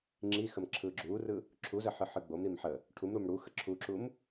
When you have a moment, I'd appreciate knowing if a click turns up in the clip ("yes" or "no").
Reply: yes